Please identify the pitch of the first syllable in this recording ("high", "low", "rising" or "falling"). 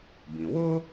low